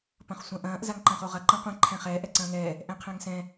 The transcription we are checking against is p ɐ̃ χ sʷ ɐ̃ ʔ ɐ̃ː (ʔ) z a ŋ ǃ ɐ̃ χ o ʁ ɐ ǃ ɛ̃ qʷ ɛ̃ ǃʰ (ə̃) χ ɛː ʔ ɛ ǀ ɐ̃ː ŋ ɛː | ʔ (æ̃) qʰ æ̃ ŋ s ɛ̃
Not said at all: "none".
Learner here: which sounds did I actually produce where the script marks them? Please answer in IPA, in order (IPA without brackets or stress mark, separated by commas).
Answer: ʔ, æ̃, ɛ̃